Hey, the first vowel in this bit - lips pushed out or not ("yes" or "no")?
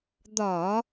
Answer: yes